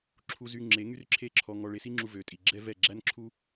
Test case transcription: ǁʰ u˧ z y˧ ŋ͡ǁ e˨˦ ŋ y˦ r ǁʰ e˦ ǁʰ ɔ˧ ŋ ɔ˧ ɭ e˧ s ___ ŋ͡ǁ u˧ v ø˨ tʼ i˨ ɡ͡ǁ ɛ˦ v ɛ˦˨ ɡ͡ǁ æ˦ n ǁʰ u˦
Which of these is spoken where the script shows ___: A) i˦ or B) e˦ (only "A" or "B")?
A